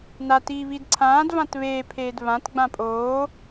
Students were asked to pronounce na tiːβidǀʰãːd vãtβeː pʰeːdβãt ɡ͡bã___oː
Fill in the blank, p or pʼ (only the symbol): pʼ